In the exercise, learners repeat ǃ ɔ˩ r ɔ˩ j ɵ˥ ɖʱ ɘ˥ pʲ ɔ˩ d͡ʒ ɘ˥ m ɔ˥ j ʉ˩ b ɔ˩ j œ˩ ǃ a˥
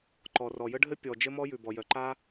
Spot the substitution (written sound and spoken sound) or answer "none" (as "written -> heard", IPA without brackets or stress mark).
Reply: ɵ˥ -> ə˥